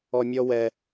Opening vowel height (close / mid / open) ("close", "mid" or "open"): mid